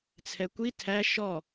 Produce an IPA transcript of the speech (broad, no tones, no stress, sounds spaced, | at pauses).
t͡sʰ ɛ kʷ i tʰ æ ʃ ɔ